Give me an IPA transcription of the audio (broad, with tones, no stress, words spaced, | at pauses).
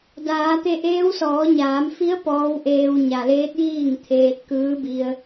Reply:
daː˩˧t̪e˧ʔeː˧˥w sɔː˩˧ɲaː˩˧m fi˧˥ə̯ pɔː˧˥wʔeː˧wɲa˩ leː˧˥t̚jiː˥˨ŋt̪ʰeː˧t̚ kɯː˧˥bi˧ə̯